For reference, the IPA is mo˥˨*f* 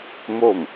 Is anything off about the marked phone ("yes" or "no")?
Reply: yes